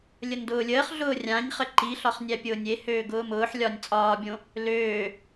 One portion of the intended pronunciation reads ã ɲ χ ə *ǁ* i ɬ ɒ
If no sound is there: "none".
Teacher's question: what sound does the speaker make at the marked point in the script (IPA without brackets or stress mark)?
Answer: ǃ